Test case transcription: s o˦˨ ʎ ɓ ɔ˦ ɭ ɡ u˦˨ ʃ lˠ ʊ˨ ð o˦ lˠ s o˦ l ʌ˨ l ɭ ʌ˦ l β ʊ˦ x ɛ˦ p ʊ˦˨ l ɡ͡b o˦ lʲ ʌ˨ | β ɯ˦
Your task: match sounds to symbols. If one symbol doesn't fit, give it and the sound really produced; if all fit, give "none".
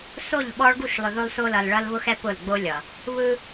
none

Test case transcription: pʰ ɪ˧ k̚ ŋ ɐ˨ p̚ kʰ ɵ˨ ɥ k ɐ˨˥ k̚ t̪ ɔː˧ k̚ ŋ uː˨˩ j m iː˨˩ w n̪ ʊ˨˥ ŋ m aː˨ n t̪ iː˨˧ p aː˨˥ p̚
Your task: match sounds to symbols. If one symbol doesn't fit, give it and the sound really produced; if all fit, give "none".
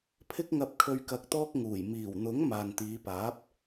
none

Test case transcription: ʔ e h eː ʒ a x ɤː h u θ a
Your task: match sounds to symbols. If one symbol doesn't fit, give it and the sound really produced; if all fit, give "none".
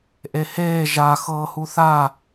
none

